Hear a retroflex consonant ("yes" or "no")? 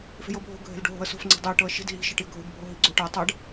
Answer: yes